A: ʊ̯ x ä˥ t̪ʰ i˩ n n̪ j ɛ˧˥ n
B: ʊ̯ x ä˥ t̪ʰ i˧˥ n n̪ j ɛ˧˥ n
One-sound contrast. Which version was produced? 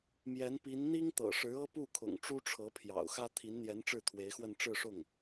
B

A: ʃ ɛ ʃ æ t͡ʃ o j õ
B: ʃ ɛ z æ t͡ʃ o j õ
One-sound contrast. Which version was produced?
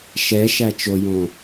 A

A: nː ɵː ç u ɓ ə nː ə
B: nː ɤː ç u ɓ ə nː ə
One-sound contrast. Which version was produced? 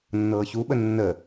B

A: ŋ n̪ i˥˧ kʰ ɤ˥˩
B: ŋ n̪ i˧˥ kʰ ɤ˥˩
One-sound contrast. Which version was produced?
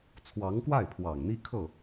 A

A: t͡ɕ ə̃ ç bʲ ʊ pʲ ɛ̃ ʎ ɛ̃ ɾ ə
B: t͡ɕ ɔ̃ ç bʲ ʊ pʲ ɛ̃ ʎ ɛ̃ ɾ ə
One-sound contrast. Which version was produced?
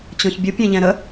B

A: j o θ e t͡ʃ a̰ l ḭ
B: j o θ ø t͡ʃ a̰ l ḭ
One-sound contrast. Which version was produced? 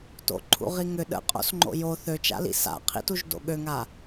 B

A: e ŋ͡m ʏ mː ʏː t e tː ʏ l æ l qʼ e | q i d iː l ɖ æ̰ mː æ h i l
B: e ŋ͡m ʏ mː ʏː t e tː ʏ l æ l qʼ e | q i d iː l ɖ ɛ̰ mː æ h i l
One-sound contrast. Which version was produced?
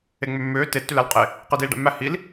A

